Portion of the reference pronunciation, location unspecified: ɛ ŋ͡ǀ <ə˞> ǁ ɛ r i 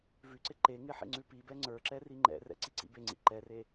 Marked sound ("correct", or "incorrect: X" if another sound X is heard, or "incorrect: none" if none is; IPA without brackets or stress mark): correct